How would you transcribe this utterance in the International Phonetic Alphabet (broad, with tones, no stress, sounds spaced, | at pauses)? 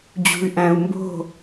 d͡ʑ ṳ˨ y̯ ʔ æ̃˨ u̯ m b o̤˦˨